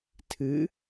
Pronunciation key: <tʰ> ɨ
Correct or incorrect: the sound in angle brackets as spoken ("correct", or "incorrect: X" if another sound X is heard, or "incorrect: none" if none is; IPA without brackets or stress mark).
correct